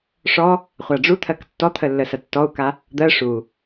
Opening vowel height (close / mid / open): mid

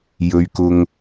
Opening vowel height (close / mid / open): mid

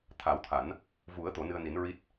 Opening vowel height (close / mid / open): open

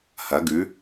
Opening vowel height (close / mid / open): open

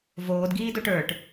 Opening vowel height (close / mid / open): mid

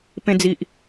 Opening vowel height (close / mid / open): mid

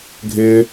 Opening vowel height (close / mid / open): close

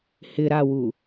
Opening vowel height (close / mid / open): close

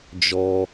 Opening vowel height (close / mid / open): mid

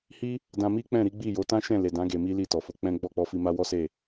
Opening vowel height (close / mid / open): close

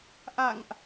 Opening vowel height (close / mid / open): open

